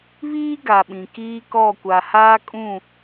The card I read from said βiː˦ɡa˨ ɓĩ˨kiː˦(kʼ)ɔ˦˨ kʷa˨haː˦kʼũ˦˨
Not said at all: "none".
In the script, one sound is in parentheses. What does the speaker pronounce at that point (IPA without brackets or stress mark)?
k